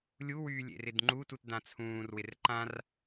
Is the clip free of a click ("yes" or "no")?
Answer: no